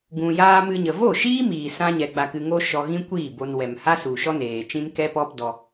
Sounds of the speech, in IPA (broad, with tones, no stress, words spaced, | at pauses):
ɡũ˨jaː˧ mɨ˧ɲə˨ vo˦˨ʃiː˦ miː˨sã˧ɲɛ˨ ɡ͡ba˧kɨ˧ŋo˦ ʃɔ˧ɣĩ˦kʷiː˦˨bo˧n wɛ˨mha˦ su˨ʃɔ˦neː˨t͡ʃĩ˦n kɛ˦pɔ˦pdɔ˧